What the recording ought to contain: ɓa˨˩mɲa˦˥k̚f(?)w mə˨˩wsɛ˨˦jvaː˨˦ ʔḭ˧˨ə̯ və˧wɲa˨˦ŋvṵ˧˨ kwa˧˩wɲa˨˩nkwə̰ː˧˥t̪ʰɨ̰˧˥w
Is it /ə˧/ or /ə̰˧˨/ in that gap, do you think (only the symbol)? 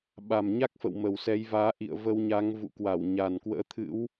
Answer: ə̰˧˨